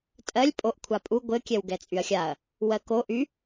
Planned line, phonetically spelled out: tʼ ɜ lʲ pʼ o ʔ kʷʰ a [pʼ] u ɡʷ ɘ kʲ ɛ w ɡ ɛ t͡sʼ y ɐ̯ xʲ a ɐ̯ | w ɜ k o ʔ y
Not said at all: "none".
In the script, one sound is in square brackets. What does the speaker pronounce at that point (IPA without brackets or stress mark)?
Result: pʼ